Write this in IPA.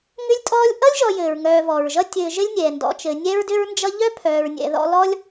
ŋ ʏ˥ lʲ tʼ ɔː˥ lʲ ʔ ʌ˥ lʲ ʒ ɔ˨ j ɘː˩ ɹ ŋ œː˨ v ɔ˩ ɹ ʒ ʌ˥ tʲ ɘː˨ ʒ ɘ˥ lʲ nʲ ɛː˩ n d ɔ̰˨ t͡ʃ ɘ˨ nʲ ɛ˥ ɹ d ʏ˥ ɹ n d͡ʒ ʌ˥ ʎ œ˥ pʰ œː˨ ɹ nʲ ɛ̰˨ ð ɔ̰˦ l ɔ˦ lʲ

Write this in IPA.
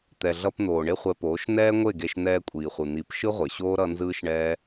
t̪ ɛ˨ ɮ ʌ˧ p n̪ oː˨ ɳ e˦ χʷ ɛ˧ p oː˨˦ ʃ n ɛː˦ ŋʷ e˦˨ ɡ e˧ ʃ n̪ ɛː˧ kʷʼ iː˨ χʷ ɯ˨ n̪ i˨˦ p ʃ ɯ˦ ʁʷ e˨ ɕ oː˦ ɾ ʌ˦ n z ɯː˦ ʃ ɳ ɛː˦

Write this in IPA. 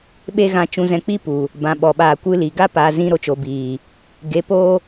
ɓ e˦ ɣ ã˧ t͡ʃ ũ˧ z ɛ̃˧ k͡p i˦ p u˨ | b ã˨ ɓ ɔ˨ ɓ aː˧ kʷ ɨ˦ l iː˨ ɡ a˦ p aː˨ z ĩ˧ ɾ o˧ t͡ʃ o˨ b iː˨ | ɡ e˨˦ p oː˦

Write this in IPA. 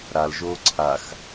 ɾ a l ʒ oː ǀʰ a x

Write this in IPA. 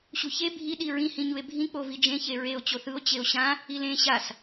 ɕ u ç e bʱ i ɗ i ɹ ĩ h ĩ ɲ u e̯ bʱ ĩ k͡p o v i d͡ʒ ẽ ç e ɹ e o̯ t͡ɕ o θ ɯ o̯ t͡ɕ e o̯ ɕ ã | i l ẽ ɕ a s

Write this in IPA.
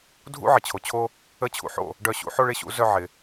dʱ ṵ˥ ʕ ɪ˩ t͡ɕʰ o˩˥ t͡ɕʰ o˥ | ə˥˩ t͡ɕʰ ṵ˧ ħ o̰˥˩ | ɖ œ˥˩ ɕ ṵ˥ ħ o˥ ɭ ɪ˧ ɕ ṵ˩˥ z œ˧ ʕ ɪ˩

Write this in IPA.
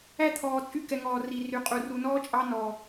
æ˦ t̪ʰ ɔː˨ t͡sʼ y˦˨ k ɛ˨ ŋ ɔː˨ r i˨ r y˨ qʼ u˨ r u˨ n ɔː˦ t͡ʃʼ ɑ˦ n ɔː˨

